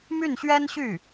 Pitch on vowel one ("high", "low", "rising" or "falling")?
falling